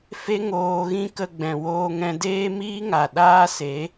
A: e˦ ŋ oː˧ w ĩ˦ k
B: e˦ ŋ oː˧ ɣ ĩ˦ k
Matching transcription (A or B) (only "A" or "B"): B